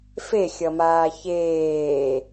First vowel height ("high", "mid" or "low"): mid